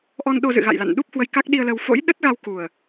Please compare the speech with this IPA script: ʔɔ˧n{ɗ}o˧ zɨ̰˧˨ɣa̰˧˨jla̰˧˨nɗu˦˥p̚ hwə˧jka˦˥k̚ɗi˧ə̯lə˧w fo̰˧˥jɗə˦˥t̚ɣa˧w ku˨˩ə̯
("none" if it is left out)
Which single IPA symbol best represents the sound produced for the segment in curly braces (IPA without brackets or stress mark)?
ɗ